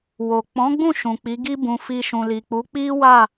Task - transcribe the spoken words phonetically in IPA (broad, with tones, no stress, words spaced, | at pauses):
wo˨k͡pɔ̃˨˦ɡ͡bũ˦˨ ʃũ˨k͡pi˨˦ɡi˦bũ˧ fi˧ʃũ˨li˨ k͡pu˨˦ k͡pi˦ wa˦˨